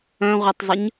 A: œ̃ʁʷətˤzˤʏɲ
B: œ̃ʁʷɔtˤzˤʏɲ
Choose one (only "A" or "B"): A